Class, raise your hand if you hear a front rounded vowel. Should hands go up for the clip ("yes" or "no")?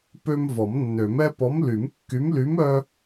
yes